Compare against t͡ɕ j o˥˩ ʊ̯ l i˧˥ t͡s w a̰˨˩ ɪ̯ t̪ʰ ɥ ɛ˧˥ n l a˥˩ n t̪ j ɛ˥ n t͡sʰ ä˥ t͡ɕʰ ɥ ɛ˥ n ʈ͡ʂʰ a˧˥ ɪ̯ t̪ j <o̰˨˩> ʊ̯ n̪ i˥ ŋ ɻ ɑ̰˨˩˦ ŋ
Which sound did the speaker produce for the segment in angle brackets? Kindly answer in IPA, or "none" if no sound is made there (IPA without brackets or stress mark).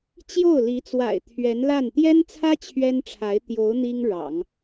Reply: o˧˥